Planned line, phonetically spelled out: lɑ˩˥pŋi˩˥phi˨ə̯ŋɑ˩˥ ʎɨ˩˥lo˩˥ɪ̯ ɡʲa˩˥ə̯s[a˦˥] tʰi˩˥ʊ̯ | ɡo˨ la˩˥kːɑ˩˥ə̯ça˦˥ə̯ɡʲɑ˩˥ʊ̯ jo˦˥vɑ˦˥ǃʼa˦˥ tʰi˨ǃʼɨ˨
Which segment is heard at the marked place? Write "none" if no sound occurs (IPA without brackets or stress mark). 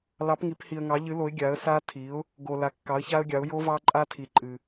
a˦˥